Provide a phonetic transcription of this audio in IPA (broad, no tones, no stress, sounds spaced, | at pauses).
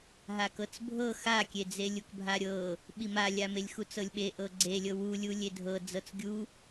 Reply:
ɦ a k ɤ t͡s bʱ ɤ x a kʲ e d͡z e lʲ u k bʱ a ɾʲ ɤ | ɓ i m a lʲ a m e lʲ x u t͡s ɤ lʲ ɓ e ʔ ɤ ɡ͡ǀ e lʲ ɤ w u lʲ u lʲ e dʱ ɤ d͡z ɤ t͡s ɡʲ u